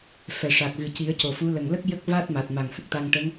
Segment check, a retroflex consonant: present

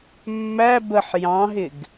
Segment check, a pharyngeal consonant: present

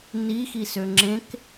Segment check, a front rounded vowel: present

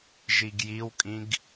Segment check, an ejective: present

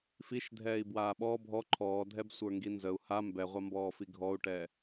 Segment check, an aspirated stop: present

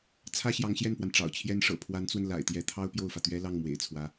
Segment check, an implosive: absent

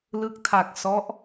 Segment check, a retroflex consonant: absent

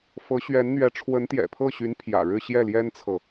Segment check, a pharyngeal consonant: absent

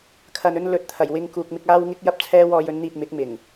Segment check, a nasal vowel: absent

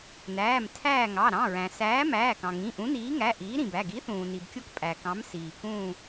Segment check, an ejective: present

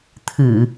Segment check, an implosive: absent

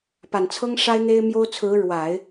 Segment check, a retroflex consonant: present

